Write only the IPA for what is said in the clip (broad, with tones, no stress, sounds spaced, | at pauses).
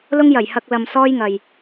l ʊ˥ ŋ j ɐ˨˩ j h ɐ˧ k̚ l ɐ˧ m s ɔː˥ j ŋ ɐ˨ j